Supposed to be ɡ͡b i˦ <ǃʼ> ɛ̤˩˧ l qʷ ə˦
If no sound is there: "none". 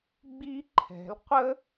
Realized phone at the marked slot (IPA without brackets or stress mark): ǃʰ